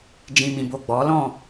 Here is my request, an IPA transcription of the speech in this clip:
d͡ʒ ĩ˨ m ĩ˨ b o˨ ɡ͡b ɔ˨˦ l ɔ̃˦˨

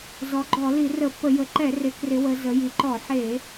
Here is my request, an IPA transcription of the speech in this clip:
z ɔ˩˧ ɡ͡ǃ ɔ˧˩˧ l i˧˩˧ r ə˧˩˧ pː ə˧˩˧ j ə˩˧ ǃ ɛ˧˩˧ r ɪ˩˧ k r ɪ˩˧ w ə˩˧ z ə˩˧ j i˩˧ ǃ ɔ˧˩˧ ħ e˧˩˧

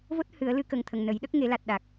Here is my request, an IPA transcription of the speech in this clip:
v o˦˥ t̚ h ɨ˨˩˦ ə̯ l ɨ˧ k ə˨˩ ŋ t̪ʰ ə˨˩ ŋ n ə˨˩˦ j ɗ ə˦˥ k̚ ŋ e˨˩˦ l a˨˩ t̚ ɗ a˨˩ k̚

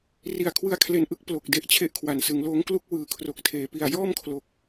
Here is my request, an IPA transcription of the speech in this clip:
r i˨˩ a̯ kʰ w ɯ˧ a̯ kʰ l e˨˩ n ʔ ɯ˥˩ k̚ p l o˨˩ k̚ d e˦˥ ʔ t͡ɕʰ e˥˩ ʔ kʰ w a˨˩ n s ɯ˩˦ ŋ l oː˦˥ ŋ k l u˥˩ k̚ w ɯː˨˩ kʰ r o˨˩ k̚ tʰ eː˩˦ p i˨˩ a̯ j ɔː˥˩ m kʰ l o˨˩ k̚

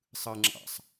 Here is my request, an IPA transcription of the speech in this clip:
sˤ ɯ ŋ͡ǁ ɑ̰ sˤ

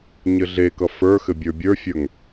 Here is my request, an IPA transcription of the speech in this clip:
ɲ ɘ ɮ e k ʌ f ə˞ x ɘ bʲ ə˞ bʲ ə˞ fʲ ə˞ ŋ

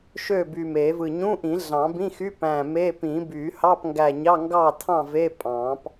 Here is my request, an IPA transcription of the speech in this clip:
ʃ ø˥˨ b yː˧˩ m eː˨˩˦ v ɯ˧˩ ɲ ũ˧˥˧ ʔ ĩ˨˩˦ ɮ ɑ̃˨˩˦ b ĩ˧˥˧ x y˧˥˧ p æ̃˧˩ m e˧˥˧ p ĩ˨˩˦ b yː˨˩˦ h ɑ˧˥˧ p ŋ ɡ æ˧˩ ɲ ɑ˧˥˧ ŋ ɡ ɑ˥˨ tʰ ɑ̃˥˨ v e˧˥˧ pʼ ɑ̃˨˩˦ p

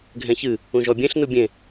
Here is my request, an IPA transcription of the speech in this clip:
ɡʱ ɛ̃ ç ɨ | ũ ʒ ɔ bʲ ẽ ɬ n u bʲ ẽ

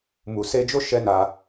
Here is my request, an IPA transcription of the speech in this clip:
m u˨ s e˧ d͡ʒ o˦ ʃ ɛ˦ n a˧

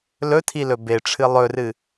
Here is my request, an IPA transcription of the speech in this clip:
l ɵ tʰ i l ɵ b e ʈ͡ʂʰ ɨ lˠ ɵ r ɨ

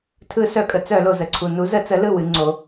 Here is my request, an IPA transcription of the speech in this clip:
tʰ ɯ˧˩˧ s œ˧˩˧ kʼ ə˩ t͡s œ˧˩˧ l o˩ z ə˩ ǀʰ u˩ n u˩˧ z ə˧˩˧ t͡s ə˩˧ l ɯ˥˩ w ɨ˩˧ ŋ͡ǀ o˩˧

